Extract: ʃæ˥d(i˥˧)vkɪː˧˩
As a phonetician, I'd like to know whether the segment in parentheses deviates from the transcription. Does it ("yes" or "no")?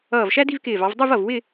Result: no